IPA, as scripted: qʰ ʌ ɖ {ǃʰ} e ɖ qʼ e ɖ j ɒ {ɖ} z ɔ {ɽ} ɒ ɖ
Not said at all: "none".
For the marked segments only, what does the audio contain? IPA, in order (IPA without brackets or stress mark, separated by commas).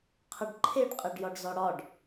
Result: ǃʰ, ɖ, ɽ